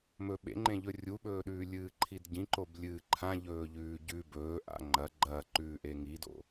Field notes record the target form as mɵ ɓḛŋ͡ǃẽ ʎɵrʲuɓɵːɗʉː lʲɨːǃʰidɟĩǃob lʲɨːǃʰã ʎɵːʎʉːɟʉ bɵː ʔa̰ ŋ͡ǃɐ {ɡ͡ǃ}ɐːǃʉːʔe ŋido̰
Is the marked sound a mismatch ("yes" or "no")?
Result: no